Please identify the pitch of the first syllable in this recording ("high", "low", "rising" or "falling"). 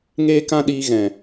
high